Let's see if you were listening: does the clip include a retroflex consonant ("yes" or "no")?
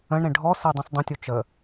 yes